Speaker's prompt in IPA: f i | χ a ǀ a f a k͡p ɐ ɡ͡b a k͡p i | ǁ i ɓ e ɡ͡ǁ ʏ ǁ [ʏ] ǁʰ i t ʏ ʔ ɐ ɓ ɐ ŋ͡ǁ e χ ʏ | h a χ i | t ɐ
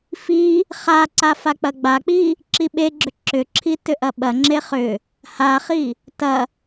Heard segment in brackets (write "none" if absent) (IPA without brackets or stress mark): ʏ